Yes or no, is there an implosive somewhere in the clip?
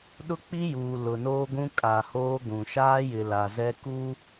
yes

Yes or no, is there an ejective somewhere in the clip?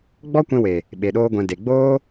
no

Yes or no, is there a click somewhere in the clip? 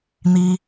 no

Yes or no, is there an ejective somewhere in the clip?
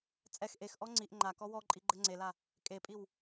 yes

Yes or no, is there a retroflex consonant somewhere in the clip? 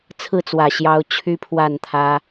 no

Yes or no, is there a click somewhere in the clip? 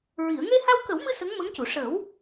no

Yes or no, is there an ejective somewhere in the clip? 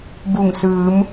no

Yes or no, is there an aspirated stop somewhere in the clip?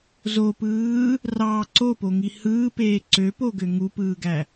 no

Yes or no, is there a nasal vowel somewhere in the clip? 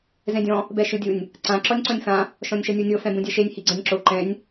yes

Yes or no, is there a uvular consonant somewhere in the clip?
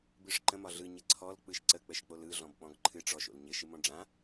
no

